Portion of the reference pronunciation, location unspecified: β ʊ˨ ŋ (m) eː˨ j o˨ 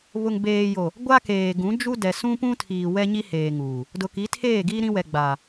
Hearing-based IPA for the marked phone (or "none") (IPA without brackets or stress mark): b